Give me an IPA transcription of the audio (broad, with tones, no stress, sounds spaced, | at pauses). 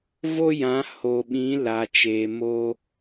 v o˦ j ã˨˦ h o˨ ɓ ĩ˨˦ l a˨ t͡ʃ eː˨ m o˦